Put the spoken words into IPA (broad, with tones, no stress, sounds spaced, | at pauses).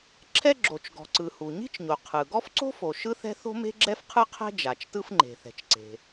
ǁʰ ɛ˥ ɡ͡ǁ o˩ t͡ʃ ɡ ɔ̤˩ ǀ ɯ˩ h u˩ ɲ i̤˥ t͡ʃ ɲ o˩ qʰ ɯ˩ ɡ ɔ˥ f ǀ o̤˥ f o˩ ʃ ɯ˥ θ ɛ̤˥ θ o̤˥ m e̤˥ ɡ͡ǁ ɛ˥ f qʰ ɯ˥ qʰ ɛ̤˥ d͡ʒ a˩ t͡ʃ t ɯ˥ f ŋ͡ǃ e̤˩ θ ɛ̤˩ t͡ʃ ǀ e̤˩